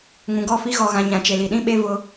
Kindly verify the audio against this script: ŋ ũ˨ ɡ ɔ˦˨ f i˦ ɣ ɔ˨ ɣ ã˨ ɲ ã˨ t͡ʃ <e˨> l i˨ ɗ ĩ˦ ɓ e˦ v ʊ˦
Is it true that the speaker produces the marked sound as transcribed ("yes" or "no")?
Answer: yes